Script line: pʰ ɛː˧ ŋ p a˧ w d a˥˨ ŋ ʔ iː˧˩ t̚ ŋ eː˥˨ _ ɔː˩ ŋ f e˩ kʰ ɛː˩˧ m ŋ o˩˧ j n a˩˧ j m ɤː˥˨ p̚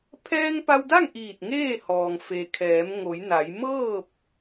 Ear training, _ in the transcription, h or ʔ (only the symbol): h